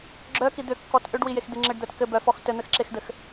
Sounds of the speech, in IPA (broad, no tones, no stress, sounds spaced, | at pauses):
ɡ͡ǁ œ k i d̪ ʏ kː ɔ t ʔ ʏ ɖ w i j e x d̪ e ŋ͡ǁ ɘ ɖ d̪ œ t k ɘ b œ f ɔ x t ɘ n̪ ɘ x ǁ e x d̪ ɘ x